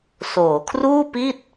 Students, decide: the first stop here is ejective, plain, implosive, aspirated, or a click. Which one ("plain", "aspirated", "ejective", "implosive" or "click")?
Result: aspirated